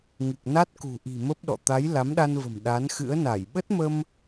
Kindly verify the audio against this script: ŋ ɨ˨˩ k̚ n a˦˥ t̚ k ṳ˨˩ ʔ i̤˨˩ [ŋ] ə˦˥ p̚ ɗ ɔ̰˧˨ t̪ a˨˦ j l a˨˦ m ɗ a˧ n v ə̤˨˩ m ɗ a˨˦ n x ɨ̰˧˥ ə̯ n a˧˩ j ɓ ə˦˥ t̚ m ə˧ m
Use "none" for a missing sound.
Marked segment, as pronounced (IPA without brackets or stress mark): m